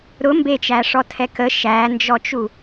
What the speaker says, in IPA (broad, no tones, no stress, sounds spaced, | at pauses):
ɾ ʊ m b e t͡ʃ æ ʂ ɔ tʰ ɛ k ə ʃ æ n d͡ʒ ɔ t͡ʃ u